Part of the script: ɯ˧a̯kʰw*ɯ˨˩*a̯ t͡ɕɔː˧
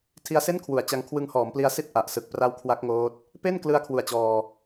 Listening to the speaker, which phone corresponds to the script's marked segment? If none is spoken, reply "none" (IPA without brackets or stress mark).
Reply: u˨˩